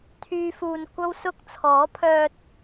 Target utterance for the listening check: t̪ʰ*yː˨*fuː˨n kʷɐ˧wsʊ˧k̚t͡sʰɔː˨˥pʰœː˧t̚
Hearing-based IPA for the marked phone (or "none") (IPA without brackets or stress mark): yː˨